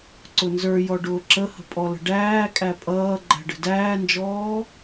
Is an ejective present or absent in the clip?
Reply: present